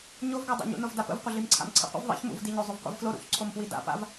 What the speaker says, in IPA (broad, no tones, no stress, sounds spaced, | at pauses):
ɲ o v ɡ a dˤ a̰ ɲ ṵ n o v d a p ə̰ v qʷ ə ɮ i m ǀʰ a̰ m ǀʰ ə̰ qʷ ə̰ v ðˤ ḭ ç m ṵ v d i ɲ o zˤ u v qʷ ḭ v f l o ɾ ṵ ç ǀʰ o m p w i d a̰ p a̰ v